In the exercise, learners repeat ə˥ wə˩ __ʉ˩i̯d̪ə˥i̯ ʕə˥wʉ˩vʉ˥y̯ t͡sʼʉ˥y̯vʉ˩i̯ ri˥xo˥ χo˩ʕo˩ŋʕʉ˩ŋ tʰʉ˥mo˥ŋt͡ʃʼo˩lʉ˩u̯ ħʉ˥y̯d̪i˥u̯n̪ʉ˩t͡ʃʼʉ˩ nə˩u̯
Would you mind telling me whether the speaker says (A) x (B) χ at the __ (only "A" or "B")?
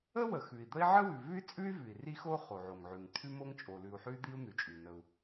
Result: A